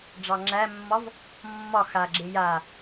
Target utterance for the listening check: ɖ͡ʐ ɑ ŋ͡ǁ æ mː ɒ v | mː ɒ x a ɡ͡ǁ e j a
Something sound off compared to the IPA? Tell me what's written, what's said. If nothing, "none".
none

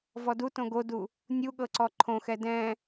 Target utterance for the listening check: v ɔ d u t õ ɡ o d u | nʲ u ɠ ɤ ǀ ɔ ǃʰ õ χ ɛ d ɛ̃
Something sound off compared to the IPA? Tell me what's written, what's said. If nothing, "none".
χ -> x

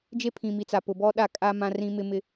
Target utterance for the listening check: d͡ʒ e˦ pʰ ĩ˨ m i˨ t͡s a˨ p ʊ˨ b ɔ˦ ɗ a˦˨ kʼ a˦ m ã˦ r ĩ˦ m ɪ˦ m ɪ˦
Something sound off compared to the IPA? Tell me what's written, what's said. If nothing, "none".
none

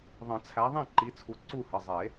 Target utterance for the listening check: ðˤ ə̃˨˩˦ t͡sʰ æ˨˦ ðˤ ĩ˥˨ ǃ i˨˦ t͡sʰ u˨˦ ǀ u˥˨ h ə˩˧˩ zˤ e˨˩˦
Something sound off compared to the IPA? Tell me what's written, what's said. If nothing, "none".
none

